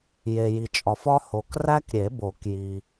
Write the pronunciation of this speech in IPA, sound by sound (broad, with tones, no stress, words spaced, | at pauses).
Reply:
je˨ ji˨t͡ʃʼɒ˨fɒ˦ ho˨kræ˦kɾʲe˨˩˦bo˨˩˦k ji˨